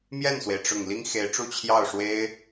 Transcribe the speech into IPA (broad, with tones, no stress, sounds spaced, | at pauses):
m j ɛ˥˩ n s w e˩ ɪ̯ ʈ͡ʂ ʊ˨˩ ŋ l i˥ ŋ x e˧˥ ɪ̯ ʈ͡ʂ u˥˧ t͡ɕʰ j ɑ˥˩ ʊ̯ ʂ w e˥ ɪ̯